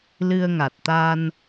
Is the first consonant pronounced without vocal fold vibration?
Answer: no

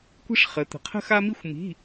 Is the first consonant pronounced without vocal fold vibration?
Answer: yes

